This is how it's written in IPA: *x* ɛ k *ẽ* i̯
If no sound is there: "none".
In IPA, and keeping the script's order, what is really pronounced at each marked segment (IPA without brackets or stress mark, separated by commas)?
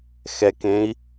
x, ẽ